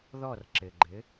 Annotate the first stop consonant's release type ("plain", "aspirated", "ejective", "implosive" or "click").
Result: click